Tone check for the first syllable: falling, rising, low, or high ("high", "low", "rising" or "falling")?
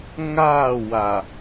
falling